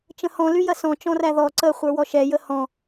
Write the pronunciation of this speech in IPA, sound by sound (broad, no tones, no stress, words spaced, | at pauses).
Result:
t͡ʃə̃hɔ̃ lyjɐsɔ̃ t͡ʃɔ̃ræðɔ ǀə χʷə˞wɔʃɛ jəhɔ̃